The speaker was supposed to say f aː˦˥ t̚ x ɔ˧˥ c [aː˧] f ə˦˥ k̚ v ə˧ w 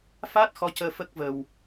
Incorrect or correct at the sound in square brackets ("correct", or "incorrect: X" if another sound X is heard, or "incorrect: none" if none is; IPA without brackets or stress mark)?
incorrect: əː˧